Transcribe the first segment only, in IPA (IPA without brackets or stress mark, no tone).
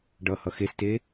ɖ